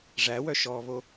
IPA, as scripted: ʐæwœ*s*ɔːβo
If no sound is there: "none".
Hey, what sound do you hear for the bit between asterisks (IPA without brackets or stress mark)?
ʃ